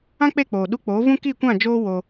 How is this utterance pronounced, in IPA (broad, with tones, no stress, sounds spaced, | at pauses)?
ã˦ k͡p e˦˨ k͡p oː˨ ɗ u˧ k͡p oː˨˦ v ũ˦ k i˦˨ kʷ ã˦˨ d͡ʒ oː˦ w o˧